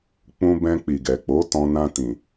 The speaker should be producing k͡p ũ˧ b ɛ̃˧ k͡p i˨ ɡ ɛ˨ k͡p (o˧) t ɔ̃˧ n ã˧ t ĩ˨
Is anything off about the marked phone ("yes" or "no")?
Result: yes